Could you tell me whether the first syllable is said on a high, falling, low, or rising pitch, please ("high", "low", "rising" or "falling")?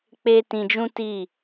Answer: high